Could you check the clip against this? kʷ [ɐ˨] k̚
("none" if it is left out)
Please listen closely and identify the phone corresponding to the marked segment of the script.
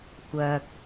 ɐ˨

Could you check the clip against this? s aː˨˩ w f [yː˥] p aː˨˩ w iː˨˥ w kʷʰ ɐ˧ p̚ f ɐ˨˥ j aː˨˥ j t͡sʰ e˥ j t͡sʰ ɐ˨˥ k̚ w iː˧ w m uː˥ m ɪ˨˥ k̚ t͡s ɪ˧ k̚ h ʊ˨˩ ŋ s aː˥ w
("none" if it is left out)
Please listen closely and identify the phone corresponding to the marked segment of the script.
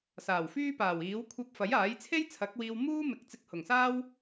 yː˥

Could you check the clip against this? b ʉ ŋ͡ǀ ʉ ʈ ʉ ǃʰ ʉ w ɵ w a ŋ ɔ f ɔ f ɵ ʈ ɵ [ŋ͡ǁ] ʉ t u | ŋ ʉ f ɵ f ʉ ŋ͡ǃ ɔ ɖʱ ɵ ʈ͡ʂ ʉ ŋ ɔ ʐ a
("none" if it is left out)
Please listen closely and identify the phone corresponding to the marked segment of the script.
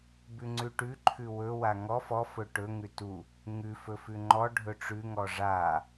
ŋ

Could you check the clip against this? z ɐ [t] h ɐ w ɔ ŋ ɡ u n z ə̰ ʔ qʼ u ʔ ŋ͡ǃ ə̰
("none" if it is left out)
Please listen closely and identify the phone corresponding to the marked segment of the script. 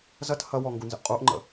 t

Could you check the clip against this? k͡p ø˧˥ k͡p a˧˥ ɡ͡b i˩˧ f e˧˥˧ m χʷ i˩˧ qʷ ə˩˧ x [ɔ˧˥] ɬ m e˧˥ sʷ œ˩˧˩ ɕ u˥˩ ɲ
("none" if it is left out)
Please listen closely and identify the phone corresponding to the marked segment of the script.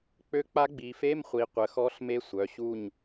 ɔ˧˥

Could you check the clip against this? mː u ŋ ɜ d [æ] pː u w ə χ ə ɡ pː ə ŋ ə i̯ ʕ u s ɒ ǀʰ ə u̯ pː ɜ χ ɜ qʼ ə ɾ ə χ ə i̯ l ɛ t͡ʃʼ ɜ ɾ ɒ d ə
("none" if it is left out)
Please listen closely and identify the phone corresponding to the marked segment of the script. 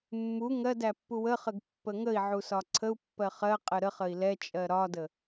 æ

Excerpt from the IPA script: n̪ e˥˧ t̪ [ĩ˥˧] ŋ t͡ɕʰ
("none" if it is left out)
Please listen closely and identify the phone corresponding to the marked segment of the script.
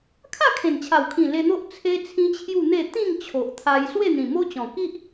ĩ˥˧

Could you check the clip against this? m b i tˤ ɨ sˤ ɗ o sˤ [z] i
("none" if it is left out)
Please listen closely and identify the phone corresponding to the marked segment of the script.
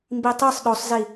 z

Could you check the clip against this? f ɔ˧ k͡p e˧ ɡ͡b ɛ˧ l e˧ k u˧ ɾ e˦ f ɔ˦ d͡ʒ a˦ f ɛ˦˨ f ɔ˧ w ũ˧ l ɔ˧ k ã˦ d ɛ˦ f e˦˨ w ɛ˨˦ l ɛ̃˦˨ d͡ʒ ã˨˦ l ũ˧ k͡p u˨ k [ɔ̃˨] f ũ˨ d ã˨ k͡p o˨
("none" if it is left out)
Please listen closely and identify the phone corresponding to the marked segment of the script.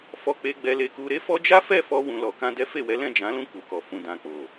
ɔ˨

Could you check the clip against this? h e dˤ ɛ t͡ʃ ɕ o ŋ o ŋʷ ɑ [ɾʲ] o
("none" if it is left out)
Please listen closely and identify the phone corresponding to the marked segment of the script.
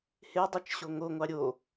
ɾʲ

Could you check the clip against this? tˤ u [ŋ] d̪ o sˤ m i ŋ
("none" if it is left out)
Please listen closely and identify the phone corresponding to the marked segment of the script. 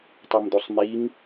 m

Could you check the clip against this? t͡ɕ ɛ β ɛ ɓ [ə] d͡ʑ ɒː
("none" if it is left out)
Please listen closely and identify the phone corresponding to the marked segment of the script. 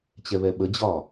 ə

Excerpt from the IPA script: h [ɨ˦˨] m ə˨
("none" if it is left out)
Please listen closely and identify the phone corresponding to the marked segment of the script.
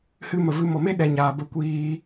ɨ˧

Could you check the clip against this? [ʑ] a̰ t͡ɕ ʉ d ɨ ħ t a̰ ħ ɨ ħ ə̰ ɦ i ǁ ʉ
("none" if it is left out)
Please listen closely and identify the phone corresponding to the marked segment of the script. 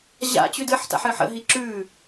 ʑ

